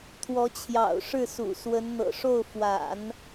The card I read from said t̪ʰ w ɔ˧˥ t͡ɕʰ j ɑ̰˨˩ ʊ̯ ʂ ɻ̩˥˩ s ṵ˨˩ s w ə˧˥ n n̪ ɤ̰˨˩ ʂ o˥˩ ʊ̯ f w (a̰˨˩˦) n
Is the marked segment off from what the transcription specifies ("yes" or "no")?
no